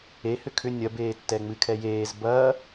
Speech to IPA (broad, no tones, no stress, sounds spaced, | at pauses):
e h ʏ kʰ ʏ nʲ ɐ b eː tː ɛ ŋ͡m ɨ kʰ ɛ j eː z b ɐː